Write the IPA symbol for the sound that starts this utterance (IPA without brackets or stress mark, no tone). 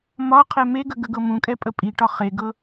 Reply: m